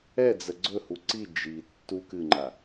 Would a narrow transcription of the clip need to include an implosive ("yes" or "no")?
no